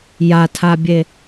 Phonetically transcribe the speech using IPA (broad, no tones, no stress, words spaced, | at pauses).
jatʰabʲe